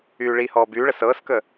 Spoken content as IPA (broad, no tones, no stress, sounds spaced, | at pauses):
yː ɭ i h ɔː b yː ɭ ə s ɤː s k əː